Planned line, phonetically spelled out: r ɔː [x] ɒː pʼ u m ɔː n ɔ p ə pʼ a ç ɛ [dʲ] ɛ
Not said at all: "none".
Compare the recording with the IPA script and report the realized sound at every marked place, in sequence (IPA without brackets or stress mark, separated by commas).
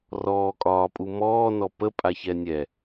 kʼ, nʲ